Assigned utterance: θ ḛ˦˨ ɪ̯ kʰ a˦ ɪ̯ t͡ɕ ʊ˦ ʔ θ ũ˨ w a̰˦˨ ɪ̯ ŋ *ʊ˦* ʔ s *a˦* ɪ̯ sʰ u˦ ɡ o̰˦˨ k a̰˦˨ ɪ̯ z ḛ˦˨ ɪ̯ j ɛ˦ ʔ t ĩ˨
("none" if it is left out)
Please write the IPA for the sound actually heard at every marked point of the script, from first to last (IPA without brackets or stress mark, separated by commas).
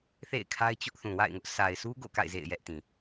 ʊ˦, a˨